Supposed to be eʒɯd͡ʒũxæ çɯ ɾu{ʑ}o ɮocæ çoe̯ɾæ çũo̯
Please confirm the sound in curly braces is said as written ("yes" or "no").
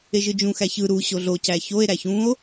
no